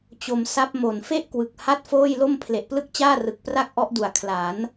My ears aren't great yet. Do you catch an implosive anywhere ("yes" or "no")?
no